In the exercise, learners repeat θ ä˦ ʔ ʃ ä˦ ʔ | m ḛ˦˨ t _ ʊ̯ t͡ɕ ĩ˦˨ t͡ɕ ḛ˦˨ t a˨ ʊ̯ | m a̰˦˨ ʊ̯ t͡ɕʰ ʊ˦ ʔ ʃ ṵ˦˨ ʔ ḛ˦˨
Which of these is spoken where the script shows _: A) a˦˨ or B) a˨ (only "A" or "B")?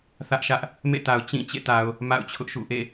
B